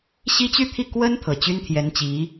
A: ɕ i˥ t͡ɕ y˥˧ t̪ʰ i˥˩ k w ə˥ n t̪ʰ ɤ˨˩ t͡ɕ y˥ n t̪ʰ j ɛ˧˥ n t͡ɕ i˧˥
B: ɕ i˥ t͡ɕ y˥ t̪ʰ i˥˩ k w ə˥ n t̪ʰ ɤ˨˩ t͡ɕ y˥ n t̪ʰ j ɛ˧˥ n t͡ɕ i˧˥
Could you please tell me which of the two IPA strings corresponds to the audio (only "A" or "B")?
A